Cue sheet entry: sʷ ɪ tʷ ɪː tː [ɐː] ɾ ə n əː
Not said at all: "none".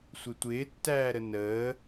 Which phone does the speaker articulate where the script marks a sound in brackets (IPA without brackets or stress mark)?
æː